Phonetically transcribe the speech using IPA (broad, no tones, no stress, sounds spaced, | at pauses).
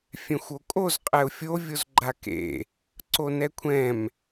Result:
fʲ ɛ̃ xʷ o kʼ o z qʼ ɛ ʊ̯ fʲ o vʲ o z ɡ͡ǃ a k ḛ | ǀ o n ɛ kʷʰ ɛ̃ m